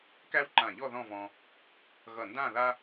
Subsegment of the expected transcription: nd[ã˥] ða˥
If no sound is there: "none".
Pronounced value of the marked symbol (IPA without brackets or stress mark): ã˥˧